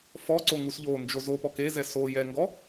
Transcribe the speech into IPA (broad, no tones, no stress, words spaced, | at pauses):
fɔǀo ŋusʎond͡ʒo zopɔk ezɛ so jɛŋɡɔ